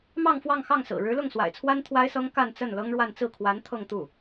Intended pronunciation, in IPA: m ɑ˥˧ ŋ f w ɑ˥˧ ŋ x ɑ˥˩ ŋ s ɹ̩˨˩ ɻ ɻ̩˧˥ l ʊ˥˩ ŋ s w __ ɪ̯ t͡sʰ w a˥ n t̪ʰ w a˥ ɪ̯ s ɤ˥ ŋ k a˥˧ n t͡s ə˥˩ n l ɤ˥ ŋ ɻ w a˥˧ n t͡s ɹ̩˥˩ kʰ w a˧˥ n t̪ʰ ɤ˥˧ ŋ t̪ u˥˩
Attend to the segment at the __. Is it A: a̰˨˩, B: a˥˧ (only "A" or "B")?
A